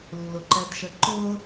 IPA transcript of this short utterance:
lː ʊ ǃ ɛ d ʃ ə ǃ ʊ

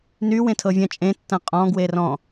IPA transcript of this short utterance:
n y w ẽ tʰ ɤ vʲ ɐ̃ t͡ʃʼ ẽ tː ɐ̃ qʼ ɔ̃ ɡ w e r ɔ̃

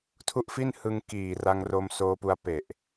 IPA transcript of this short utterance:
tʰ u˥˩ ʔ f i˥˩ n h ɯ˧ ŋ k iː˨˩ r a˧ ŋ r o˧ m s oː˧ p u˧ a̯ p e˨˩ ʔ

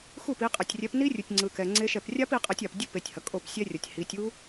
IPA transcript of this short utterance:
x u˥˩ p i˨˦ qʼ ɛ˨ tʲ rʲ ɛ˨˦ p n i˦˥ rʲ u˨ tʲ ŋ͡ǀ ɯ˨ k ɛ˨ ŋ͡ǀ e˦˥ ʃ ɛ˥˩ p rʲ a˦˥ p i˨˦ qʼ ɛ˨˦ tʲ a˨ p dʲ u˦˥ p e˨˦ tʲ h ʌ˨ kʼ o˥˩ p sʲ ɛ˦˥ rʲ ʌ˨ tʲ h i˨˦ tʲ u˦˥

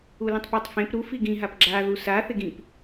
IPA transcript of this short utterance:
u l ĩ tˤ p a tˤ f ẽ p ɾ u f i ɡ ĩ ɦ a p ɡ͡ǁ a ð u s a θ e ɡ ĩ p

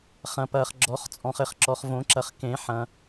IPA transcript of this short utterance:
χ ɐ̃˨ p ɐː˨ χ ɡ͡ǁ ɔ˨˩˦ χ t͡sʼ ɔ̃˨ χ ɘ˨ χ ǁ ɔ˨ χ v õ˨˩˦ ǁ ɐ˨ χ k ẽ˨˩˦ ħ ɐ̃˨

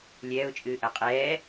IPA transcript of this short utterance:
lʲ ɛː ʊ̯ t͡ʃʼ ɨː ʔ ɐ qʼ ɛː

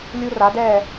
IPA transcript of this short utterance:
lʲ u˦ r a˨˦ d ɛː˦˨

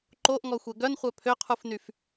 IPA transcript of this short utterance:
ǃ o ʔ ŋ ɔ xʷ ɛ ɡ œ n χʷ œ pʰ ø qʰ u f n y f

